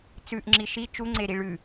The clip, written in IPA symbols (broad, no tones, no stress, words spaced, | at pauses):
t͡sʉʔŋ͡ǁi ʃi t͡ʃuŋ͡ǀeɾi ɭʉ